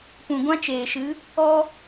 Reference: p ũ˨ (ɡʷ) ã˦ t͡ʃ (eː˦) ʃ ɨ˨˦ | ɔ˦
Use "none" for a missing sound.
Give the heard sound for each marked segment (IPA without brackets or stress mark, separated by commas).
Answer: ɡʷ, eː˨